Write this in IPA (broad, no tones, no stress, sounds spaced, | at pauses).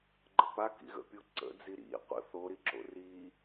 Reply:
ɡ͡ǃ ə p a k ḭ ɣ ə̰ pʲ u ǀ ə̰ d͡z i ɾ ḭ qʷ ə̰ θ o ɾ i ǁ o̰ r i